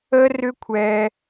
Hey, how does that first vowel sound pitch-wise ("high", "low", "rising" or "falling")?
high